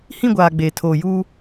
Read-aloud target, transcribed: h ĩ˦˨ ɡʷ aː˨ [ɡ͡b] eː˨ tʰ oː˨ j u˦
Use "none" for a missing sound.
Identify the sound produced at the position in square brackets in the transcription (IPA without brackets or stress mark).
ɡ͡b